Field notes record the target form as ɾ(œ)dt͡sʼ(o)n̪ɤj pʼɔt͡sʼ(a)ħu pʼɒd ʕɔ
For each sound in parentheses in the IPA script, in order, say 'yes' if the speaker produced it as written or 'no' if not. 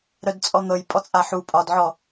yes, no, yes

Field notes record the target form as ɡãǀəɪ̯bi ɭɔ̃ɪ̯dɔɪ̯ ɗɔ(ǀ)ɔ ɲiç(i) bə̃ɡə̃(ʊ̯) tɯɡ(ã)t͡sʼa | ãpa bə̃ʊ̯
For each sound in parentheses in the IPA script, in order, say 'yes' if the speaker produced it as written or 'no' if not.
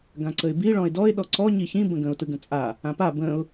yes, no, yes, no

